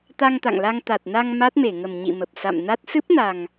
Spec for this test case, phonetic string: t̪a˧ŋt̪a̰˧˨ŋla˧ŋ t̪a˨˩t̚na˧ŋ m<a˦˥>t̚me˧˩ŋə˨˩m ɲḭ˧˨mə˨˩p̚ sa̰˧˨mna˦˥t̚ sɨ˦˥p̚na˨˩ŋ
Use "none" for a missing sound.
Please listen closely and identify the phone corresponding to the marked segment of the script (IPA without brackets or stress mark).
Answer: a˦˥